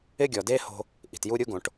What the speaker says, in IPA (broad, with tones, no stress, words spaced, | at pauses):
ɪ˥ɡʲɔ˩de˥ ho̤˧ | ʔi̤˩tju˥ɾʲu˥ɡõ˩ʈ